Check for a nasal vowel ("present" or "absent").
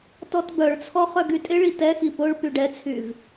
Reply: absent